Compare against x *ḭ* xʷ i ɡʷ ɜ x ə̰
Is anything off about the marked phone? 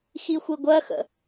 yes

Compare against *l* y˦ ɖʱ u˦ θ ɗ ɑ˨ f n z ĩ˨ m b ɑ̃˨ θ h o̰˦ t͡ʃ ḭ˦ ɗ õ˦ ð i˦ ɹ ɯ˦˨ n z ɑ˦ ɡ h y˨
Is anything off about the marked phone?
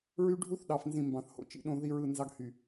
yes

